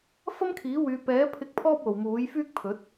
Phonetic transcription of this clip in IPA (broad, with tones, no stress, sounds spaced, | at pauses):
f ɐ˥ m kʰ iː˨˥ w yː˨˧ p ɛː˨˥ pʰ ɪ˧ k̚ pʰ ɔː˥ p̚ w o˨ w m uː˨˥ j f yː˥ k̚ pʰ ɵ˨˥ t̚